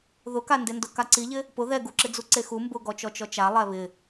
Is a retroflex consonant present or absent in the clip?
absent